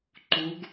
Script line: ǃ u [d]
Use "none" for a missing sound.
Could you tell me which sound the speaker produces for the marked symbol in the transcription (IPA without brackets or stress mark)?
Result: ɡ